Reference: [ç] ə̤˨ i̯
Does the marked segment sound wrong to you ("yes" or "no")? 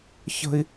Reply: no